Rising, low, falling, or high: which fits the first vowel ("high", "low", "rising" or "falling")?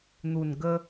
low